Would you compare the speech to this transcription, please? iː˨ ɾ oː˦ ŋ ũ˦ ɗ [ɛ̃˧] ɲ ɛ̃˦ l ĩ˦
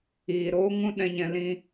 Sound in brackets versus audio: incorrect: ɛ̃˦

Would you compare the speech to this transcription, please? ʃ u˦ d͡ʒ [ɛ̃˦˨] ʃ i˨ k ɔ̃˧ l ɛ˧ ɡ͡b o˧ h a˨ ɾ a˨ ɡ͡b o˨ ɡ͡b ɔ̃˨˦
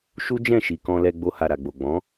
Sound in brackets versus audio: correct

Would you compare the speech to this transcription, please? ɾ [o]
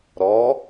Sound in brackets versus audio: incorrect: ɔ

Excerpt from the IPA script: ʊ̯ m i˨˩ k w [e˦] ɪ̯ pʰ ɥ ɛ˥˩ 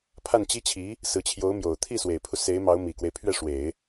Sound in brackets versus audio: correct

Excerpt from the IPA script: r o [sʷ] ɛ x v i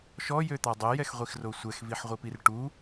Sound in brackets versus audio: correct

